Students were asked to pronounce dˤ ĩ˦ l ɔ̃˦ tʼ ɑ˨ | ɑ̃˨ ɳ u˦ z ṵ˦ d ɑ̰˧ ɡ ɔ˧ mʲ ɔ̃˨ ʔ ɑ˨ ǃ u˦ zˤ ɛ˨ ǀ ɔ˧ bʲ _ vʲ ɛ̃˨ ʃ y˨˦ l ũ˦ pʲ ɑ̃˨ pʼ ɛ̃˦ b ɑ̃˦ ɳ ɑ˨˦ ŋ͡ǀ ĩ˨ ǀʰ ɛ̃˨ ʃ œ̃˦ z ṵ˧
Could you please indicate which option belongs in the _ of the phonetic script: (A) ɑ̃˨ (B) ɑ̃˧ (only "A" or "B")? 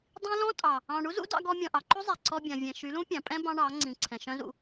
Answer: A